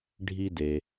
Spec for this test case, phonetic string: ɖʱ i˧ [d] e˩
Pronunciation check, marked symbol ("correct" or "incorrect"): correct